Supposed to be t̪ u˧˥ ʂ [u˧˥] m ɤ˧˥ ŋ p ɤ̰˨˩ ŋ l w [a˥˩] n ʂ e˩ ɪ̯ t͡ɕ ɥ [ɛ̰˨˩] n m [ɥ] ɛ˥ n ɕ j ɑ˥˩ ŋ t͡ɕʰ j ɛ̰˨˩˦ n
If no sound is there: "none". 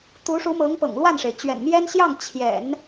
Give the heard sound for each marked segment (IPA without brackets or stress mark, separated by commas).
u˧˥, a˥˩, ɛ̰˨˩, j